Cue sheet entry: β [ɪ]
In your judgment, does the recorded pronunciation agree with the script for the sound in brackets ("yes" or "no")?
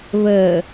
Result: no